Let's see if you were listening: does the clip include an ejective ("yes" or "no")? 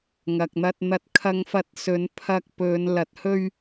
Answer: no